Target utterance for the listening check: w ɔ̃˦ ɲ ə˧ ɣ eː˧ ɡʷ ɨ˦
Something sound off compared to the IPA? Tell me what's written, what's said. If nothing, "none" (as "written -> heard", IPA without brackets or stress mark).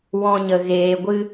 none